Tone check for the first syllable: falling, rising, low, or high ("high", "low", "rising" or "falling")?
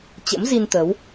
rising